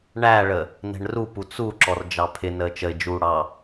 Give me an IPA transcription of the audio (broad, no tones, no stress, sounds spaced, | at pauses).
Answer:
ɳ æ ɭ ə | n ɛ̤ ɳ r u p u t͡s u ǁ ɔ r d͡ʒ ɑ pʰ ɪ n əː t͡ʃ ə ɪ̯ d͡ʒ uː ɽ ɑ